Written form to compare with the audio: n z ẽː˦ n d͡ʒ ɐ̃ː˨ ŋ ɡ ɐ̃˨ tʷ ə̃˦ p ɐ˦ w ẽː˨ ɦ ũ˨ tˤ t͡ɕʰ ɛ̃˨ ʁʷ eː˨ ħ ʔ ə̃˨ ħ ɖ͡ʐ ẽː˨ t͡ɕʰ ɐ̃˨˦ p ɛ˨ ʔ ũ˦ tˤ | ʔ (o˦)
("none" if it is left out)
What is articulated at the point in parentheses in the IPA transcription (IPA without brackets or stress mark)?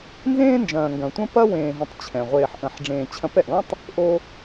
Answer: o˦